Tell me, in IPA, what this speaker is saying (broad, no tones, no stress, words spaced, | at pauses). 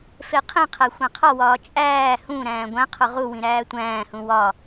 feqʰĩqʰæ xʷæ̃qʰɒwɒː t͡ʃʼæː hũɾæ̃ː ɡʷæ̃ qʰoʁuwĩ ɾæːtʷæ̃ːhũ wɒ